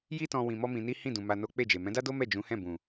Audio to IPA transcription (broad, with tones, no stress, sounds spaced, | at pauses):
j i˦ t ɔ̃˧ w ĩ˧ m ɔ˦ m ĩ˧ n i˦ h ĩ˦˨ d ũ˨ m a˧ n o˦ k͡p e˦˨ d͡ʒ e˨ m ɛ̃˨˦ d a˦ d o˦ m ɛ˦˨ d͡ʒ ũ˨˦ h ɛ̃˦˨ b ũ˨